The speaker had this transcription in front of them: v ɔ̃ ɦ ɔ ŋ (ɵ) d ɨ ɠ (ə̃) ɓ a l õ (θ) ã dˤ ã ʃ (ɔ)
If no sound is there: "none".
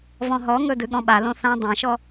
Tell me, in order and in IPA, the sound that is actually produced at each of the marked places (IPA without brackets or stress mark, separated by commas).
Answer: ɵ, ɔ̃, θ, ɔ